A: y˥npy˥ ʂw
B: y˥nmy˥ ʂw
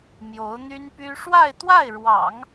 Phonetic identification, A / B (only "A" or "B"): A